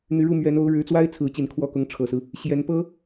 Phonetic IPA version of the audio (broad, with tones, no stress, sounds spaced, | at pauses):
n̪ y˧˥ ɻ u˥˩ m ɥ ɛ˧˥ n o˧˥ ʊ̯ ɻ ɻ̩˧˥ t͡s w a˥ ɪ̯ t͡sʰ ɹ̩˧˥ t͡ɕ i˨˩ n kʰ w ɔ˥˩ k ʊ˧˥ ŋ ʈ͡ʂʰ ɤ˨˩ s ɹ̩˦ | ɕ j ɛ˧˥ n p ɤ˥